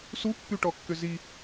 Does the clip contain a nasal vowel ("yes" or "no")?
no